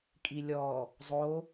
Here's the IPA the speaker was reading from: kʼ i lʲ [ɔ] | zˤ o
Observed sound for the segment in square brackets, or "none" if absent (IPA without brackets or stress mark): ɔ